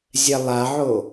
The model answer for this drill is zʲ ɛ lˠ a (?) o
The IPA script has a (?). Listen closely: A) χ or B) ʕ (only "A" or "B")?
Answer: B